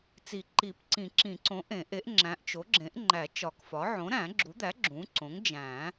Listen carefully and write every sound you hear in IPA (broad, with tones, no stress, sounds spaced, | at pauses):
t͡s i˨˩˦ ǃ i˨˩˦ p ǀ ĩ˨˩˦ ǁ ĩ˨˩˦ ǀ õ˩˥ ʔ ẽ˨˩˦ ʔ e˩˥ ʔ ŋ͡ǁ æ̃˩˥ ʔ t͡ʃ o˩˥ ɡ͡ǁ ẽ˩˥ ʔ ŋ͡ǃ æ˨˩˦ t͡ʃ ɒ˨˩˦ k f ɒ˩˥ ʕ õ˩˥ ɾ æ̃˨˩˦ ɡ͡ǁ u˩˥ d̪ æ˩˥ ɡ͡ǁ ũ˩˥ ǀ õ˩˥ ŋ d͡ʒ æ̃˨˩˦